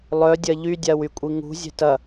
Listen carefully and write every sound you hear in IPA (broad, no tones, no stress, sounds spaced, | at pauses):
lˠ œ dʲ ɐ ʎ y dʲ a w y kʷʼ i ŋ ṳ zʲ ɛ̤ t ɐ